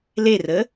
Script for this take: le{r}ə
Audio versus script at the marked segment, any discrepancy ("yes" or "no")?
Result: no